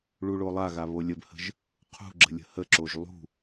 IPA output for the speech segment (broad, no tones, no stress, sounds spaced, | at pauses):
ɭ u ɭ o lˠ a ɣ a β o lʲ ə b h ə̤ ʒ | qʰ ṳ ɡ͡ǁ ə̤ lʲ ə̤ h ə ǁ o ʒ lˠ ṳ